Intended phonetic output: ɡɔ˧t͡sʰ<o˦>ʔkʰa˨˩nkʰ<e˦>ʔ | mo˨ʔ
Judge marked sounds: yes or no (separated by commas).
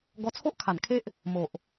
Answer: yes, yes